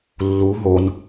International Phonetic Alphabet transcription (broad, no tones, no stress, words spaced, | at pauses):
lːu ɦon